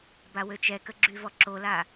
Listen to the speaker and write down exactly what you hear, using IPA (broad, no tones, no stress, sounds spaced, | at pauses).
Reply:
b a w ø t͡ʃ ɛ k ə ɡ͡ǁ y v ɔ ǁ o l a